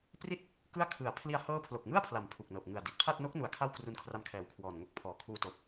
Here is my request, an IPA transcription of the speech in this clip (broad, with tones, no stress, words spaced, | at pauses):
pri˥˩t̚ | kɯ˥˩a̯ kʰɯ˩˦a̯pʰli˧a̯ hɤː˦˥ pʰlo˨˩k̚ŋɯ˥˩a̯pʰla˩˦m pʰu˨˩k̚nɤː˨˩p̚ ŋɯ˨˩a̯di˨˩t̚pʰa˥˩t̚ no˦˥k̚nu˨˩a̯ kʰa˥˩wkru˧nkʰra˧mkʰɛː˨˩w kʰwɔː˨˩nŋo˦˥k̚pʰɔː˨˩ kʰuː˧toː˨˩p̚